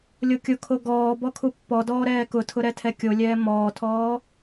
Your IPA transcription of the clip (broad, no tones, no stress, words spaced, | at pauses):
lʲokʲʊkʰo ɡɔː bɔkʰupːɔdɔː ɾɛːkʊtʰʊ ɾɛtʰɛkʲolʲɛː mɔːtʰɔː